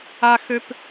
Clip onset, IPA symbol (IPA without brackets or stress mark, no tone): a